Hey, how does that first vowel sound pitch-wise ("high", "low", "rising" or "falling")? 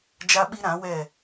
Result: high